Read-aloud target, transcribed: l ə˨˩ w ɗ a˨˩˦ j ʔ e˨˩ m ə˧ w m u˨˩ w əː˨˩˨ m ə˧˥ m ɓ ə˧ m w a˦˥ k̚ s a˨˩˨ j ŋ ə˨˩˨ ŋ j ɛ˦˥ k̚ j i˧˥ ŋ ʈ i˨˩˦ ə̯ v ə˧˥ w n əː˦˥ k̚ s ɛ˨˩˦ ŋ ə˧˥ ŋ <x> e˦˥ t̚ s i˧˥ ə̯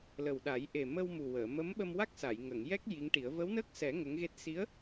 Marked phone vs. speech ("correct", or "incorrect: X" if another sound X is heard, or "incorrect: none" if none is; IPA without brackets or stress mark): incorrect: ɣ